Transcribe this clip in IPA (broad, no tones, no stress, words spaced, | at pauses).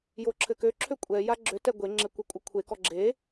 joǁʰɘkøǁʰø kʷʼɛja ɡ͡ǁøtɛ ɡʷeŋ͡ǁɘ kʷɛkʷʼʌkʷʰekɔ ɡ͡ǁe